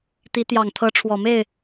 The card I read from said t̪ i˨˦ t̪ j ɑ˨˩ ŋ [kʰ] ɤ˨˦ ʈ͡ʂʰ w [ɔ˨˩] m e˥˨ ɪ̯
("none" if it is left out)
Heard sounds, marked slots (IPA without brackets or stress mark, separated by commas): t̪ʰ, ɔ˨˩